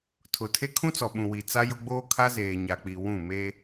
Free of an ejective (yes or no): yes